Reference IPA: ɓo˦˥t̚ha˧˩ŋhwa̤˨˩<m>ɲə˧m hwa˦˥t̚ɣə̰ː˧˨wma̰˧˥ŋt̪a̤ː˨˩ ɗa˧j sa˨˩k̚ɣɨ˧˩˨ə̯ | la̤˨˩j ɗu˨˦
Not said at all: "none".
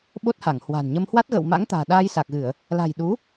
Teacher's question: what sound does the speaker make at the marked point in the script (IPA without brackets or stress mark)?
n